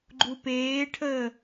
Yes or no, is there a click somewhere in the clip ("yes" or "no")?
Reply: yes